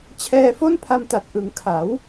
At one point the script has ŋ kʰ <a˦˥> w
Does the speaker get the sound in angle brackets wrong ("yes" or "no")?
yes